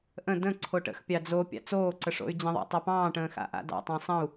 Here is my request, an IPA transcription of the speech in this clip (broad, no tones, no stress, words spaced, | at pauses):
ʔə̃ də̃ ǀʰoʈə̰xpʲɑ d͡zo pʲɑ̰t͡soːǀə ʂo̰y̯d͡ʑə̃ðˤɑ̰ tˤopɑ̃ːʈə̃ː xa̰ʔa̰dɑ̰tˤə̃ː sˤə̃u̯